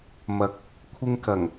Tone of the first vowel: rising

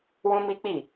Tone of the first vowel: high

